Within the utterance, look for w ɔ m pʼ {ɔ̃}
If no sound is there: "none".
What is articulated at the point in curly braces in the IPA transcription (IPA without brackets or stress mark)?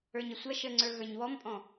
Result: ɔ̃